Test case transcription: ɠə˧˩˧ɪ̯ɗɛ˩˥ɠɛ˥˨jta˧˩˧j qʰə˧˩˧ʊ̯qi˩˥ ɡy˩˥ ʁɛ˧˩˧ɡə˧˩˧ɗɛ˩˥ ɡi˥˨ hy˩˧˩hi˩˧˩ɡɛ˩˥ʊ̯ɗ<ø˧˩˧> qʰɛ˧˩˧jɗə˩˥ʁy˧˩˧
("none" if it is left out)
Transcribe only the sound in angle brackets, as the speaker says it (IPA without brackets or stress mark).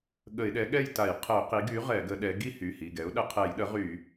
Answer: ə˧˩˧